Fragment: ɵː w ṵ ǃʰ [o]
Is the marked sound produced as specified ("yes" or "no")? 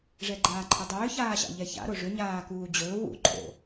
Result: no